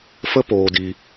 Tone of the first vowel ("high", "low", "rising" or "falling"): high